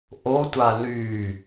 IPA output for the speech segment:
ʔ o tʷ a l y

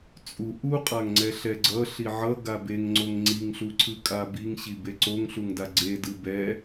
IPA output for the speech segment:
t͡sʼ u ʔ u qʼ a ŋ ŋ͡ǀ ɛ ɬ ɛ ɡ͡ǀ ʌ ɬ i ʕ ʌ ɡ a b e ŋ ŋ͡ǀ o ŋ ŋ͡ǀ i ŋ ɬ u ǀʰ ɯ kʼ a b i ŋ ɕ i b e ǀ o ŋ ɬ u ŋ d a ɡ͡ǀ e d ɯ b ɛ

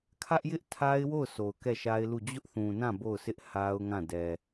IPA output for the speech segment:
kʰ ä˦ ʔ j ɪ˦ ʔ tʰ a˦ ɪ̯ w o˦˨ ʊ̯ s o˨ ʊ̯ k ɛ˦˨ ʃ a˦ ɪ̯ l u˦˨ d͡ʑ ʊ˦ ʔ θ ũ˨ n ã˦˨ b o˦˨ ʊ̯ s ɪ˦ ʔ h a˦ ʊ̯ ŋ ã˦˨ d ɛ˨

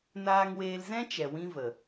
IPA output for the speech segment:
n aː˧ ŋ w eː˧ l z ɛ̃˦ t͡ʃ ɛ˨ w ĩ˦ v ə˨

